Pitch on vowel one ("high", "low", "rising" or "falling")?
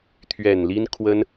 low